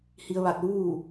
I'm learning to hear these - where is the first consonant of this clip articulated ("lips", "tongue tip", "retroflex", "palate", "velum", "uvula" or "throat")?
throat